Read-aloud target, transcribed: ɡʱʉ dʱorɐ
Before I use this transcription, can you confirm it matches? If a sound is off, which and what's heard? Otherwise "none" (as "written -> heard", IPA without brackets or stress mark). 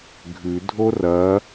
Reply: none